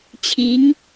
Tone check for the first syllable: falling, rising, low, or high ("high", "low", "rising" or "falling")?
rising